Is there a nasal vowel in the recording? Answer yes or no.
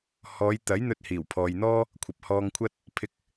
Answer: no